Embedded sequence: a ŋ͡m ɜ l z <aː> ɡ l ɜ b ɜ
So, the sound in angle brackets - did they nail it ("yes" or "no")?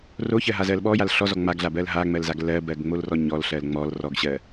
no